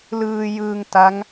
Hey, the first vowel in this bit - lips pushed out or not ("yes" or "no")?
no